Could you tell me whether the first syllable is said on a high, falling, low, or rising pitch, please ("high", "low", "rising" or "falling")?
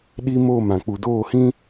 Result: high